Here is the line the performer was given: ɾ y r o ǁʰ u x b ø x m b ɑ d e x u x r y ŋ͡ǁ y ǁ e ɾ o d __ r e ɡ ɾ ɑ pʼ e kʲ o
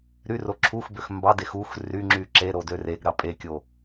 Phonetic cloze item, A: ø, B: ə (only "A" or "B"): A